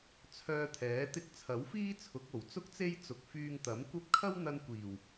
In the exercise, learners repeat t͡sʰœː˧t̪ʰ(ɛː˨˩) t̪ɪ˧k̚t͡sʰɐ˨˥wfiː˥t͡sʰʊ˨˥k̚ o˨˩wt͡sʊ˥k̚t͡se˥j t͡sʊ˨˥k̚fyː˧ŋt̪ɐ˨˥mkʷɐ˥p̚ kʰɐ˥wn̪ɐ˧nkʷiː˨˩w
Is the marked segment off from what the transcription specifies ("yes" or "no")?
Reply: yes